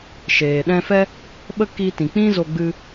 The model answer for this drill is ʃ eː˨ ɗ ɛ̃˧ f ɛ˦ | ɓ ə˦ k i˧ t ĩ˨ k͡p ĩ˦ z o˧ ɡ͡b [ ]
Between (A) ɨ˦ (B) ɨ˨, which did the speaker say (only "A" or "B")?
A